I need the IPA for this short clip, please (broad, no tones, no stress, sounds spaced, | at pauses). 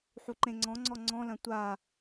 ħ u ǃ ẽ ŋ͡ǀ ɔ̃ ŋ͡ǀ ɔ ŋ͡ǀ ɔ̃ l ɐ̃ tʷ a